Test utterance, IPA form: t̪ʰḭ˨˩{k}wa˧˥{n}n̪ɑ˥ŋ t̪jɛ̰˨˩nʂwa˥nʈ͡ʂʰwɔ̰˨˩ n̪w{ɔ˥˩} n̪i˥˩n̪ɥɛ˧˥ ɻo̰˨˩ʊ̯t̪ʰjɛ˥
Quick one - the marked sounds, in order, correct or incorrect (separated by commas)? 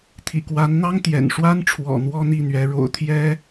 correct, correct, incorrect